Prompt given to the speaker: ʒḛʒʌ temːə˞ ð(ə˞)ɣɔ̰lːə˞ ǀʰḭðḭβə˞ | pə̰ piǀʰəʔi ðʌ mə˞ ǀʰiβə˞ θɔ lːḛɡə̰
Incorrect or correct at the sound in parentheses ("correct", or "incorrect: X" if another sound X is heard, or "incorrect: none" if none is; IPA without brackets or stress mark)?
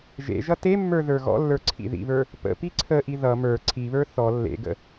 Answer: correct